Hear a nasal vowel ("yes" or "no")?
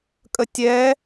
no